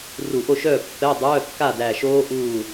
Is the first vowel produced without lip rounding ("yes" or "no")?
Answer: no